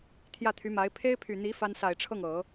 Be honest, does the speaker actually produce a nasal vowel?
no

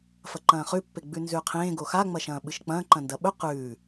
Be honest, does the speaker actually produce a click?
yes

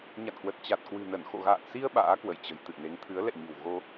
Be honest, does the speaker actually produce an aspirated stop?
yes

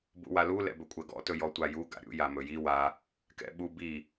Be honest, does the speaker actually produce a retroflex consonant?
no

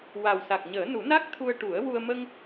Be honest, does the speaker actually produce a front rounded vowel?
no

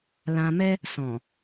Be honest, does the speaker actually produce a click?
no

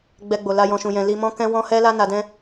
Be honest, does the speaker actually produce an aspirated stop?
no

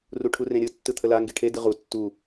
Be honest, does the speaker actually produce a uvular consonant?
yes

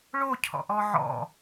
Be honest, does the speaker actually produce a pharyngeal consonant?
yes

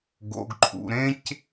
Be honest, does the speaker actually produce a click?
yes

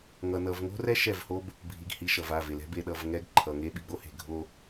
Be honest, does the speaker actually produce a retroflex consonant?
no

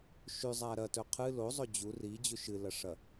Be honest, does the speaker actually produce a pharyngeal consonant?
no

